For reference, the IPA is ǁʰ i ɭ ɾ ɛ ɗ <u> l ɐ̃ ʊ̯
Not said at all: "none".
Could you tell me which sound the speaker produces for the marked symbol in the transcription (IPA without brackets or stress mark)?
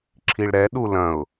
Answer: u